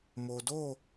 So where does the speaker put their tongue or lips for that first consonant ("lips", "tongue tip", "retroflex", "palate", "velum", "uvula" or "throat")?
lips